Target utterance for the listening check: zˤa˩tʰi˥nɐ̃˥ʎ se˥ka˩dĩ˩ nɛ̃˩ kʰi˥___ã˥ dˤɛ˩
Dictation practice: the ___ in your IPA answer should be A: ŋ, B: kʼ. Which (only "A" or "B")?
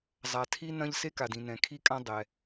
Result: B